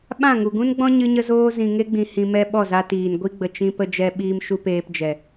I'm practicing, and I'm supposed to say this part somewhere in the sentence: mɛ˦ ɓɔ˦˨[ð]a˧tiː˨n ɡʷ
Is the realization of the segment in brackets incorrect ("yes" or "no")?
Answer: yes